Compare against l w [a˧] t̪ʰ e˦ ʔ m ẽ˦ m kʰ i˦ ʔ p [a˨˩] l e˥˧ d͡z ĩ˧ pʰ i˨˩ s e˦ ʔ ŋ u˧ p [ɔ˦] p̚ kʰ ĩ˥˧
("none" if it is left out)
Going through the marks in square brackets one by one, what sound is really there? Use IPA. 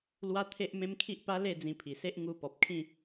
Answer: a˦, a˦, ɔ˨

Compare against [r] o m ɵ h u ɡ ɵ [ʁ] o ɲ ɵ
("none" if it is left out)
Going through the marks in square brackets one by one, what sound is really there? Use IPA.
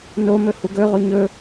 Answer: n, ʁ

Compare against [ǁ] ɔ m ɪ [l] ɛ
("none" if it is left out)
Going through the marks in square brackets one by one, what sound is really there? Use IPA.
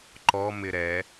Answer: ǃ, ɾ

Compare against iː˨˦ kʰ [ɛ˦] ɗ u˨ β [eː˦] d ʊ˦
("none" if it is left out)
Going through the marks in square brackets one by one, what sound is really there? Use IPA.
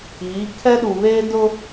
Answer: ɛ˦, eː˦

